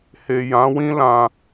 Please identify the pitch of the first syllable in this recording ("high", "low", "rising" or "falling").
low